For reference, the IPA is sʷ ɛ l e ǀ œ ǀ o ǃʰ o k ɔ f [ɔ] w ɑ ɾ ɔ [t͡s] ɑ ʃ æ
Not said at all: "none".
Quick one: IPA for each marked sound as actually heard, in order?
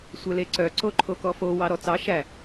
o, t͡s

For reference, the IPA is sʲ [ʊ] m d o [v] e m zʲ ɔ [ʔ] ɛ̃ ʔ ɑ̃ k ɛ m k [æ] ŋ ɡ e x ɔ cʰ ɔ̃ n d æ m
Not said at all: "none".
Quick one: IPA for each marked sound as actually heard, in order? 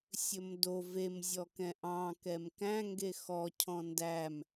ɵ, v, k, æ̃

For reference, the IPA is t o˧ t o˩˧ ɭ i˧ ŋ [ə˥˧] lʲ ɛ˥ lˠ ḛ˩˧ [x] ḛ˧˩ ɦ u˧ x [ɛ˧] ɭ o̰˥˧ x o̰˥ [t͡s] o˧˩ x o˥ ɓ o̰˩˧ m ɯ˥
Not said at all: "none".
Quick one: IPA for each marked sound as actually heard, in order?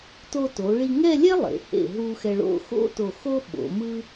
ɛ˥˧, h, ɛ˧, t

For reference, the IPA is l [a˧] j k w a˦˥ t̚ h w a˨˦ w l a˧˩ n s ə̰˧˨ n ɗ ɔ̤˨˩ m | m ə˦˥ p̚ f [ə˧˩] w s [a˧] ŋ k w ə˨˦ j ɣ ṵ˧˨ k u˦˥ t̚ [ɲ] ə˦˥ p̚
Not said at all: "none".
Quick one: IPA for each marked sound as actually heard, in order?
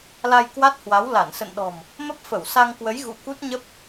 a˧, ə˧˩, a˧, ɲ

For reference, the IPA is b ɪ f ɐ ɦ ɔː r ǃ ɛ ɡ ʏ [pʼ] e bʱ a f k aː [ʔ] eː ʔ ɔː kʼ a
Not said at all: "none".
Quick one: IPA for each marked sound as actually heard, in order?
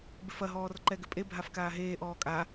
pʼ, ɦ

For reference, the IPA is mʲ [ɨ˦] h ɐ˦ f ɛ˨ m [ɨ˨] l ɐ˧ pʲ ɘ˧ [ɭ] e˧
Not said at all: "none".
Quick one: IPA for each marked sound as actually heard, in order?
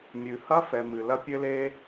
ɨ˨, ɨ˨, l

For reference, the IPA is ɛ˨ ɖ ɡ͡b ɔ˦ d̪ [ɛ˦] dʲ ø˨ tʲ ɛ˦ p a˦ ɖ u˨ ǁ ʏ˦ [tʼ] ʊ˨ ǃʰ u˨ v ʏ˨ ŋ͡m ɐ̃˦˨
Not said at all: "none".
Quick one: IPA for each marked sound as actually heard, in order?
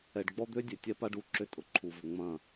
ø˦, tʼ

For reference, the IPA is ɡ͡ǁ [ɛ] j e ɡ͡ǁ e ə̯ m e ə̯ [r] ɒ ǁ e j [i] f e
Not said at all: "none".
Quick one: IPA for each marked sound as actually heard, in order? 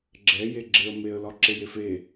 ɛ, l, e

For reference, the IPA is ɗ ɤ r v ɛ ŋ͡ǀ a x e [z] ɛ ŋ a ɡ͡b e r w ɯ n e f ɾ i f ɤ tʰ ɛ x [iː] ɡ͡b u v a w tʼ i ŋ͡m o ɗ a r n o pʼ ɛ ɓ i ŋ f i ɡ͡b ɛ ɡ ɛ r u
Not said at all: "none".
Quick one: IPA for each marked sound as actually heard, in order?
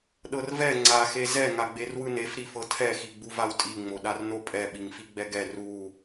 z, i

